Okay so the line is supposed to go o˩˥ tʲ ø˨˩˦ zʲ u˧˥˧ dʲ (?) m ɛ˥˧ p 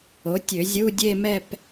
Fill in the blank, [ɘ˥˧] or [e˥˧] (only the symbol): e˥˧